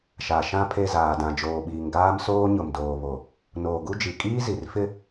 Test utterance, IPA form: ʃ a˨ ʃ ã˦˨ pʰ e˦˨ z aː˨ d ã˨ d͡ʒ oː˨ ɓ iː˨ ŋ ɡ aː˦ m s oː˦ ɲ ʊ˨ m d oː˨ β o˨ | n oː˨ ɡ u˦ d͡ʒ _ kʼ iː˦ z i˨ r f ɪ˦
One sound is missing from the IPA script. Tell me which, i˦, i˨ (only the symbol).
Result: i˨